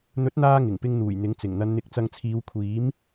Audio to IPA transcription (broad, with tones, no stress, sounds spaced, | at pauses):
n̪ ɵ˨˥ t̚ n̪ aː˧ ŋ ɪ˨˩ ŋ p ɪ˧ ŋ n̪ uː˨˩ j n̪ ɪ˨˥ ŋ t͡s ɪ˨˩ ŋ n̪ ɐ˨˧ n n̪ ɪ˨˥ k̚ t͡s ɐ˧ ŋ t͡sʰ iː˨˧ w kʷʰ iː˨˥ m